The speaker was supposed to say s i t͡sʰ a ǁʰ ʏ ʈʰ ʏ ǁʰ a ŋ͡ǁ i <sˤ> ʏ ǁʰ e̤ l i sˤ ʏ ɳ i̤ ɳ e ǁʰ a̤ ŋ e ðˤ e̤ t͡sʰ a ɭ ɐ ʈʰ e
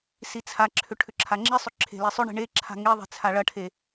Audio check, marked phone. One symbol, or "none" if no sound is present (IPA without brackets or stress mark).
sˤ